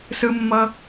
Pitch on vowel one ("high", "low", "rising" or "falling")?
high